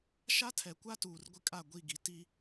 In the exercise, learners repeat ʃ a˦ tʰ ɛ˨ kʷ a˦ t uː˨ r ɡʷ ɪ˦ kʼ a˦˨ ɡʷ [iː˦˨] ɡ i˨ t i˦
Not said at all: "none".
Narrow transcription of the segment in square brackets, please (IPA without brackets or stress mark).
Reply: i˦˨